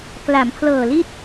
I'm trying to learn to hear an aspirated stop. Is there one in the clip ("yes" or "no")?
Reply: yes